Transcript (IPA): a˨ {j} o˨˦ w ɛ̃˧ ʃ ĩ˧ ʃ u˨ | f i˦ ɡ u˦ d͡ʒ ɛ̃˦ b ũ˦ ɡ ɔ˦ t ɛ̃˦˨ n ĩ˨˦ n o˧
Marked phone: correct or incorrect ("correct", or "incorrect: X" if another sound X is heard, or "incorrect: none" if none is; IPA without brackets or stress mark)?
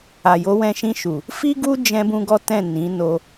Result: correct